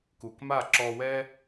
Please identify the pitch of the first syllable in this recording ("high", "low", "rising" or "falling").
low